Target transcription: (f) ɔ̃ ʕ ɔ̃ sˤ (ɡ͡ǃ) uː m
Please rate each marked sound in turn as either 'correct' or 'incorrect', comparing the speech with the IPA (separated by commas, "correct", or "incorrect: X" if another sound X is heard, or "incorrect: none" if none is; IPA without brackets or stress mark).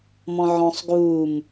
incorrect: m, incorrect: ɡ